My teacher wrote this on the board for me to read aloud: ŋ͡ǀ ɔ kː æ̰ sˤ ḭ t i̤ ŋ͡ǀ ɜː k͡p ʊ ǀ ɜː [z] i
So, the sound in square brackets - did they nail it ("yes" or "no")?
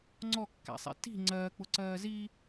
yes